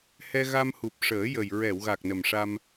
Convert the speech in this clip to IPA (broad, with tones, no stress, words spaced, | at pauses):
hɛ˧ɣa˧m hu˨˩p̚ʂəː˨˩˦jə˨˩j ɹɛ˨˩˨wɣa˨˩k̚ nə˨˩mʂa˧m